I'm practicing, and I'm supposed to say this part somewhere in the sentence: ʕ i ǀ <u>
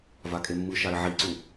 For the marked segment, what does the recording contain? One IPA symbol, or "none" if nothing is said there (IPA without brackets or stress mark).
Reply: u